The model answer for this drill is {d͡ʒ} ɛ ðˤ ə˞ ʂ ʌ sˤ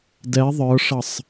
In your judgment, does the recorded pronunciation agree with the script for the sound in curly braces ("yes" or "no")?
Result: no